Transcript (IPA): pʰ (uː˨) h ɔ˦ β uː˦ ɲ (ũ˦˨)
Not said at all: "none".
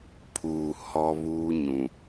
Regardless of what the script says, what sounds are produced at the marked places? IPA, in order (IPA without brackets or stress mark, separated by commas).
uː˨, ũ˨